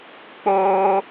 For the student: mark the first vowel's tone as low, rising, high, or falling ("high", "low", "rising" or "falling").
high